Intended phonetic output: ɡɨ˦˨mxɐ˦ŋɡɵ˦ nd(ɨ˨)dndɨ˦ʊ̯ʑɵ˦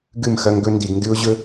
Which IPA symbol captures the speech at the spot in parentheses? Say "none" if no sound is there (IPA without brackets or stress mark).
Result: i˨